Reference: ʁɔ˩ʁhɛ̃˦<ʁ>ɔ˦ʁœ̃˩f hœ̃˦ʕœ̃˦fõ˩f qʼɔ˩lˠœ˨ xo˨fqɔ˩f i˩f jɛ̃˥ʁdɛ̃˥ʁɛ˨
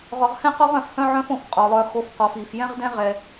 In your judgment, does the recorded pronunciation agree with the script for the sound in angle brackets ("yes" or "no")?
no